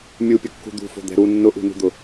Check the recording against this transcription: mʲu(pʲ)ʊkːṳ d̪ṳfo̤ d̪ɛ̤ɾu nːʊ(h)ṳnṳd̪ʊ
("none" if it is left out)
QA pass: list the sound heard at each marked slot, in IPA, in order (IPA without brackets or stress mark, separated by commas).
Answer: pʲ, ʔ